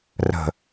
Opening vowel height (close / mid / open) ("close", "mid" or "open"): mid